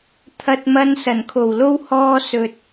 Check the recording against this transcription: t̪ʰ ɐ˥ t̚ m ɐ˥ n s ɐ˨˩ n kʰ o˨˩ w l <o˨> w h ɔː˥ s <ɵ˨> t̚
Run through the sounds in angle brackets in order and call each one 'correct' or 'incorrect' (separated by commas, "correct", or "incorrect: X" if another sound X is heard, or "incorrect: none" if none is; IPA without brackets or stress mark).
incorrect: o˥, incorrect: ɵ˧